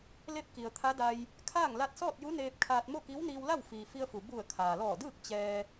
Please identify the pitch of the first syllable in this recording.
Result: falling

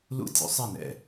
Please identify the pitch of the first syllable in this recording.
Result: falling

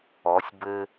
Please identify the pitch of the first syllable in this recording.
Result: rising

